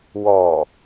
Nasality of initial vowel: oral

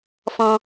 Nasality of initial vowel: nasal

